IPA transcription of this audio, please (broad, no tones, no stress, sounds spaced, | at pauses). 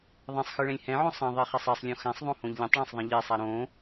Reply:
ðˤ ɛ̃ sˤ x ɯ ɭ ɛ̃ lʲ h ɛ̃ ʕ õ sˤ ẽ ðˤ e χ ɛ sˤ ɛ sˤ lʲ õ x ã sˤ ðˤ õ h õ ʎ lʲ ɛ̃ tˤ ɭ ã sˤ ðˤ ẽ ʎ e sˤ a ɾ õ